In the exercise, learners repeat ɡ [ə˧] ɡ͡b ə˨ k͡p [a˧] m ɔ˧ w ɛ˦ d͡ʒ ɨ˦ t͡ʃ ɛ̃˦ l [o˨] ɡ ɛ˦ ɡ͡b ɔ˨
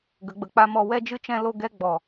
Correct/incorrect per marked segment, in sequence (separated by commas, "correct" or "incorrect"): incorrect, incorrect, incorrect